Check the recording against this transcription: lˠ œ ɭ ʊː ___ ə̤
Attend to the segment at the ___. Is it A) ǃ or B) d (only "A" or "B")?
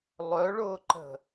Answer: A